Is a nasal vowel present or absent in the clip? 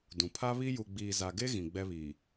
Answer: present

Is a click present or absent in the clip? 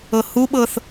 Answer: absent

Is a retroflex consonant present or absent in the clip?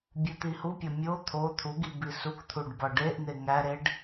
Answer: present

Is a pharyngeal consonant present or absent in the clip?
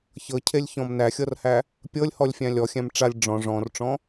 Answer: absent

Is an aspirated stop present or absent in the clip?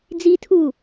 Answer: present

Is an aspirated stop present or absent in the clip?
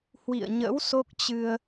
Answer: absent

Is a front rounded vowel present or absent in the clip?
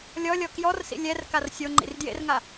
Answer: absent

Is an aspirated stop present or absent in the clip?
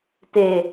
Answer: absent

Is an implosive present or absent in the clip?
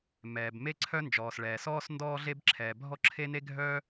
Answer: absent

